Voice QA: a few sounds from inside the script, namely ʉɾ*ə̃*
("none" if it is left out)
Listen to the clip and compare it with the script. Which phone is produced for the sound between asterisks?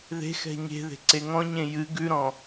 ɔ̃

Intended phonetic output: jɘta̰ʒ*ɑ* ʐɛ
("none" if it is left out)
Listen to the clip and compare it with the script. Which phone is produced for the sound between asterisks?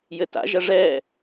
ɐ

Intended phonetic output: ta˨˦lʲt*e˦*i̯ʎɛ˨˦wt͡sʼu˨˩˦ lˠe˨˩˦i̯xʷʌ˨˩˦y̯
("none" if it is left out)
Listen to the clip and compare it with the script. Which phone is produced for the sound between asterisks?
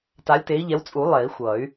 e˨˦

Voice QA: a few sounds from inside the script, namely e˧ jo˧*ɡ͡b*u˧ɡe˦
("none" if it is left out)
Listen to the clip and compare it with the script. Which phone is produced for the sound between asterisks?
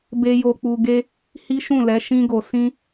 k͡p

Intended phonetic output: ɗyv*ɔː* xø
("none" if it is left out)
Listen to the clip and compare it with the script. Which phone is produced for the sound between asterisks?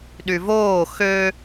oː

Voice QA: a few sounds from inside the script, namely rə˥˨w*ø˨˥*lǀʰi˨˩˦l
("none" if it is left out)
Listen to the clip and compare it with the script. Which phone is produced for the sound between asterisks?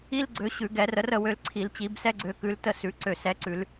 ø˨˥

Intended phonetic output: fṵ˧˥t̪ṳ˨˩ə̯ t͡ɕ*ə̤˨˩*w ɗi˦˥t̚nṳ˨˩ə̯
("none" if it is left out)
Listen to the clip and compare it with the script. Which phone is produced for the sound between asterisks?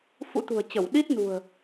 ə˧˩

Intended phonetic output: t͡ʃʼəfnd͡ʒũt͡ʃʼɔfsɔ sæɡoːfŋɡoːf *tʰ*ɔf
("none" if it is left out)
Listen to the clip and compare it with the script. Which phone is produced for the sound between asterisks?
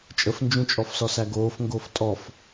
tʼ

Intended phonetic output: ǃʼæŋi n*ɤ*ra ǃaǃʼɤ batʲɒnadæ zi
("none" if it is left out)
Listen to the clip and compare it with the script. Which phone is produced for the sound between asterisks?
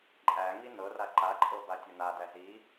ɤ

